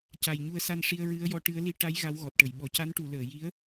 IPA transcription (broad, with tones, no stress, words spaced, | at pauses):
ca˨˩jɲu˧ə̯sa˧n ʂi˧ə̯ɹɨ˧˥ə̯jɔ˧˥ ʈɨ˧˥ə̯li˧ ʈa˧˥j ɣa˧˥wɣɔ˨˩t̚ʈə˨˩˨j ɓɔ˨˩˨ca˧˥nʈu˨˩˨ ləː˨˩˨ji˧˥ə̯